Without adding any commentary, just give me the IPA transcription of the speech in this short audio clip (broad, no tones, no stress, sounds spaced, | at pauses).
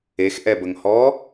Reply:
e x ʔ ɛ b ə ŋ h ɔ